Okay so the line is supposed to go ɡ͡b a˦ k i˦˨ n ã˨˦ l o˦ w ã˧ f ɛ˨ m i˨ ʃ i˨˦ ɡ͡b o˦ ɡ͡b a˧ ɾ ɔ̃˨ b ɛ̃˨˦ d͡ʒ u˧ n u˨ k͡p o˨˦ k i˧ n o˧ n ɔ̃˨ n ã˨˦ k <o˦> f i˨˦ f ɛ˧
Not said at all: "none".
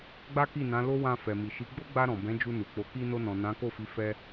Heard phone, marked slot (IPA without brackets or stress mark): o˦˨